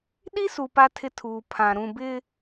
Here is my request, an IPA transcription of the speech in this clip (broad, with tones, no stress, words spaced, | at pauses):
ɗi˦su˨ pa˦tʰɪ˦tʰuː˨ pʰã˨ ɾũ˨ bɪ˦